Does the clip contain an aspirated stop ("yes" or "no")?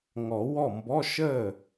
no